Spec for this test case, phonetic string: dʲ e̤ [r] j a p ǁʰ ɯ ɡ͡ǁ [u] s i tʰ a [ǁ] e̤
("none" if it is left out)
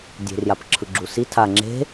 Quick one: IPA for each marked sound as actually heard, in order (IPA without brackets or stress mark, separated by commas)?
r, u, ŋ͡ǁ